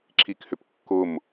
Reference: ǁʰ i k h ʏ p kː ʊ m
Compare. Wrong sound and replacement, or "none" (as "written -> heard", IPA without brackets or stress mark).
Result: none